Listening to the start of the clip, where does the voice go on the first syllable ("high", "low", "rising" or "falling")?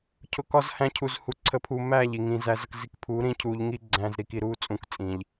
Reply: low